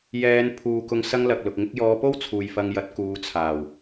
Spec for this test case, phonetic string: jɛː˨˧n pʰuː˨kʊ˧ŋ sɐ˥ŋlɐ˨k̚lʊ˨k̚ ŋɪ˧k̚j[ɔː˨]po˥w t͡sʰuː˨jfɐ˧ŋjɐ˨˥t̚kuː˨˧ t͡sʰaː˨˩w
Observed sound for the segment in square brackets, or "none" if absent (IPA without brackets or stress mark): ɔː˨˧